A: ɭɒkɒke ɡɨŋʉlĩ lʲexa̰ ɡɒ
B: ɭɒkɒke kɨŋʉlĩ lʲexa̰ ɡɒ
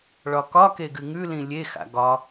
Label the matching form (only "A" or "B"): A